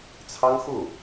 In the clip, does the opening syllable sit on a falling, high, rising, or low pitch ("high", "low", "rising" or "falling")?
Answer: high